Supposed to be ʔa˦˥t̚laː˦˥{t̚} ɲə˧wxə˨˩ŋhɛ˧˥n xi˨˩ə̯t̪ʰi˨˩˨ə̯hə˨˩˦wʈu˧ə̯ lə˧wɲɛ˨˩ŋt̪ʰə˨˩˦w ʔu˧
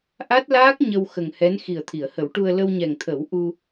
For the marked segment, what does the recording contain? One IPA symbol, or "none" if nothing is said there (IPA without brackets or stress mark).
k̚